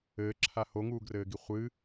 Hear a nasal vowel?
no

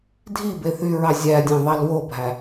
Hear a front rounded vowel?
yes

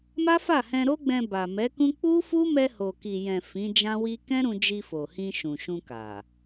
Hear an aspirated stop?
no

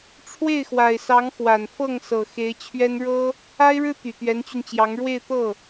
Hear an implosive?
no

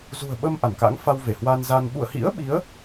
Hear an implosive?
yes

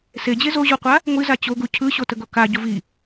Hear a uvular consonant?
yes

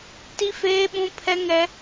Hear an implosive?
yes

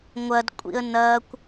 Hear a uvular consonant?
no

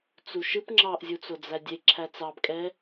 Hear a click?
yes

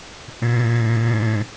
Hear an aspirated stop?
no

